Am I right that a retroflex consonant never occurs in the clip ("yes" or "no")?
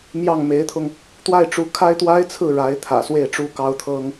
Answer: no